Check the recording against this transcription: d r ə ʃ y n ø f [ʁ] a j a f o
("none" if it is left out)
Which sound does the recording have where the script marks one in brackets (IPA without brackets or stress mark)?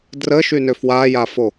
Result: w